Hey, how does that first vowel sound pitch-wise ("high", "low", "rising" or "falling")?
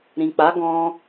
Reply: low